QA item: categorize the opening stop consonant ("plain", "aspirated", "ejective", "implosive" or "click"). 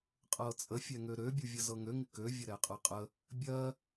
ejective